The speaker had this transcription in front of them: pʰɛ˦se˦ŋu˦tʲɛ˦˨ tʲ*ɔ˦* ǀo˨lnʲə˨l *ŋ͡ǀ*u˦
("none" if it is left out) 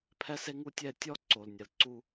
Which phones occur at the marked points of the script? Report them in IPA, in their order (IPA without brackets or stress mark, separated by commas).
ɔ˦, ǀ